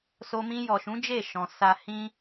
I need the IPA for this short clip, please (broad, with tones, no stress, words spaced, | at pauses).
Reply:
so˧mĩ˧ jɔ˨ʃũ˨˦ d͡ʒe˦˨ʃɔ̃˨ sa˨ hĩ˧